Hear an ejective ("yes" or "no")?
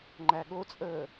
yes